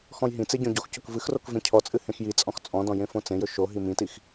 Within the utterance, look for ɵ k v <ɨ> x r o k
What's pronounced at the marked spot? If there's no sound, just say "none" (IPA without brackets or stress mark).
ɨ